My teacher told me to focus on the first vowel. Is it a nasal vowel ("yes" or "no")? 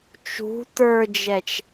no